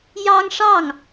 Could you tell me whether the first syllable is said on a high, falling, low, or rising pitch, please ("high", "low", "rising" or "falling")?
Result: high